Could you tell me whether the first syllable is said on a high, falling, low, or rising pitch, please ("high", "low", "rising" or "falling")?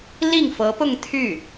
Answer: falling